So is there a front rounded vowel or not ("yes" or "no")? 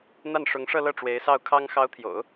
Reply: no